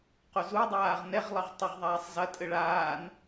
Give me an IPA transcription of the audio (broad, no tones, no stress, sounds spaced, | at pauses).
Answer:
q o z u dˤ aː ʁ n ɛ ʁ lˠ ɐ ʁ tˤ o ʁ ðˤ aː sˤ z ɐ tʼ ɘ ɭ aː n